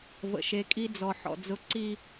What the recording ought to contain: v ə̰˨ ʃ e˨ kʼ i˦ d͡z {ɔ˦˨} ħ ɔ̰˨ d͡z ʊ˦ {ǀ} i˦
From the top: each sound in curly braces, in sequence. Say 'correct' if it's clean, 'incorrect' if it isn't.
incorrect: ɔ˨, correct

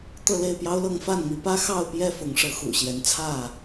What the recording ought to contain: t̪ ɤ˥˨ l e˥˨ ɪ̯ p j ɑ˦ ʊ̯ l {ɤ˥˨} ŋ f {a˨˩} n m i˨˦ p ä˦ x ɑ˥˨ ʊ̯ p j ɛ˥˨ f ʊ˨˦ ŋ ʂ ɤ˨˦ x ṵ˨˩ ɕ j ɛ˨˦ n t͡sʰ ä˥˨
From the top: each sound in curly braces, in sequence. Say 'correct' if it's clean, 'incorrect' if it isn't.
correct, incorrect: a˥˨

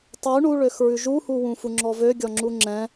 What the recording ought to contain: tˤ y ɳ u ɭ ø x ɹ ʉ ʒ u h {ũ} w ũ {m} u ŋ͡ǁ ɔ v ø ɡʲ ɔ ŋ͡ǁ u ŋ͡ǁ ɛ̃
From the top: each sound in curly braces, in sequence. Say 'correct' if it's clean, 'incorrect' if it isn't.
incorrect: u, incorrect: f

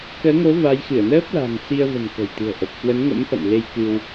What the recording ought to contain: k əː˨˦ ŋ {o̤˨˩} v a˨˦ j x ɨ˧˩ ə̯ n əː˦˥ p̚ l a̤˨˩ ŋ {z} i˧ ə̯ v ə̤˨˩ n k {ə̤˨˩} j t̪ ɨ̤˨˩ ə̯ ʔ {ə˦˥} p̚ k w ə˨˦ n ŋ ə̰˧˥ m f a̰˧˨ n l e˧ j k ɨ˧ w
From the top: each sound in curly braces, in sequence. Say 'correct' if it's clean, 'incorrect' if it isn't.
incorrect: o˨˦, incorrect: s, correct, incorrect: ə˨˩

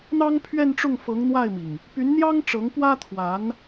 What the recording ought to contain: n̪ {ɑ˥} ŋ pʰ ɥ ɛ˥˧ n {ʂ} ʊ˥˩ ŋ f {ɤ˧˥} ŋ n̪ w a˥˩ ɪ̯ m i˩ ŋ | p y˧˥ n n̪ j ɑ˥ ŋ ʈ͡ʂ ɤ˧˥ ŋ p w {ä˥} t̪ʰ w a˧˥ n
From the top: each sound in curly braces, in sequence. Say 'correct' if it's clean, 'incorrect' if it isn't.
correct, incorrect: ʈ͡ʂ, correct, correct

